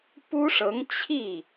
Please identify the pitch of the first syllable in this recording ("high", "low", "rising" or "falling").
high